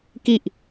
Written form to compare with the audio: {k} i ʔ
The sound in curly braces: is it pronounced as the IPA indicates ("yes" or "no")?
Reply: yes